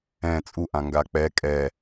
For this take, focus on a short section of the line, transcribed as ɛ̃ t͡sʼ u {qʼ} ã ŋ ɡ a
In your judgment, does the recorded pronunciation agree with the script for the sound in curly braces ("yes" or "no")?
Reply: no